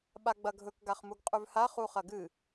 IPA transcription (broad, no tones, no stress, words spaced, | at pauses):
ɓaɡ͡bɐɡʱɵk ɡaχmuɡqʼʉvha χuχɐɡɨ